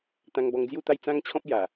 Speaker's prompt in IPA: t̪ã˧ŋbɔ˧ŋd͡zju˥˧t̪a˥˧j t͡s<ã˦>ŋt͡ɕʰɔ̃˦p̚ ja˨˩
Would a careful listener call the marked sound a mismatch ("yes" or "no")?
no